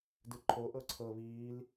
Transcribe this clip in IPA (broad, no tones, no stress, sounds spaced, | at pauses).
d ɯ ǃʰ o ʔ ɤ ǀʰ ɤ β iː l